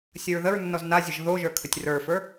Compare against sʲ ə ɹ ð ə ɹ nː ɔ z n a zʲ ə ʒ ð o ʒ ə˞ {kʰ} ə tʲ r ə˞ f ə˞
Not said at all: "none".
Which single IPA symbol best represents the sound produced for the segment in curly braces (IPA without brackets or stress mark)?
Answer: kʰ